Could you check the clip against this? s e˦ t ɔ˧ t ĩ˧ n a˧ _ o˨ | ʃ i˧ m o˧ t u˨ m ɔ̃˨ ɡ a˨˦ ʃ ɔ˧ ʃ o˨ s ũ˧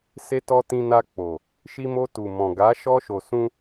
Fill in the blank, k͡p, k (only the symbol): k͡p